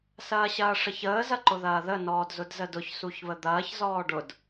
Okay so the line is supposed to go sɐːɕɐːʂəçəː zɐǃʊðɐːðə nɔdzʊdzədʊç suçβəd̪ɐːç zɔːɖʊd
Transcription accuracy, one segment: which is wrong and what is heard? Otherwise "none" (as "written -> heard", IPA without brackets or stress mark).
ɔ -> ɔː